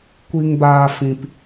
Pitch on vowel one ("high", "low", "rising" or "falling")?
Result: low